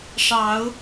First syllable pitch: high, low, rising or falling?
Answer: rising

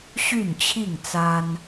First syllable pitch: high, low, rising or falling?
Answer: falling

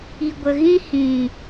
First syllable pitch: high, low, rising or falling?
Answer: low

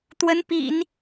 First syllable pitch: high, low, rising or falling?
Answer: rising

